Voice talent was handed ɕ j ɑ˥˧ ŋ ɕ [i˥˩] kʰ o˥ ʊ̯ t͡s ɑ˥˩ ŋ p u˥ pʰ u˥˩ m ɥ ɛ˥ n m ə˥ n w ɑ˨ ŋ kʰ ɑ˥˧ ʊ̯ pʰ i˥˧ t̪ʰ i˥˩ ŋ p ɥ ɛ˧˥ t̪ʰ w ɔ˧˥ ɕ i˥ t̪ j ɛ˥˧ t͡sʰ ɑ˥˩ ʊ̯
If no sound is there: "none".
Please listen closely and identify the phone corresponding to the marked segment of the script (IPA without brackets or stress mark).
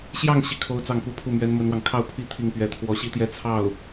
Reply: i˥˩